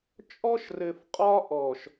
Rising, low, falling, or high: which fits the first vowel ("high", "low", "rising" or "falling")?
high